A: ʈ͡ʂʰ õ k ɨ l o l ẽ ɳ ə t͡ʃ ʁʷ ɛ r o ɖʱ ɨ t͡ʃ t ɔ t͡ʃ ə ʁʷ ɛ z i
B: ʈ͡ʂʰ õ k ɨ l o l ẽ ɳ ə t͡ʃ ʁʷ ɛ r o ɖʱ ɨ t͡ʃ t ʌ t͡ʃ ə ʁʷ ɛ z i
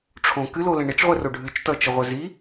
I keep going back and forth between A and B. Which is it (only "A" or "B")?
B